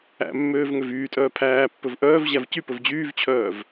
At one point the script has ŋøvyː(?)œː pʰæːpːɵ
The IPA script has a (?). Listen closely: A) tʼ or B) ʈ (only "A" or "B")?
A